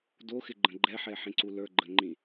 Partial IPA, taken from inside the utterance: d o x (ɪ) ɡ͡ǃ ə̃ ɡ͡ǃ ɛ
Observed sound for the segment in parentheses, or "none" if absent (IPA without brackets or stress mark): ɪ